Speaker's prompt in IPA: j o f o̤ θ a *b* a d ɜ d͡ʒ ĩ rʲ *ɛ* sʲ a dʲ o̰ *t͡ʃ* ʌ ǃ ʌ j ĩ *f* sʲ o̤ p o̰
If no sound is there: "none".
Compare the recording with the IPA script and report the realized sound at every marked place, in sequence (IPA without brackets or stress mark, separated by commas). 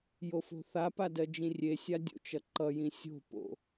p, e, t͡ʃ, none